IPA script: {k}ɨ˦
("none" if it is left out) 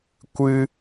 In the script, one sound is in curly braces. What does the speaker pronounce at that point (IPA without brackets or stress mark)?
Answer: kʷ